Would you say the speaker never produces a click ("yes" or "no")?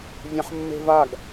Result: yes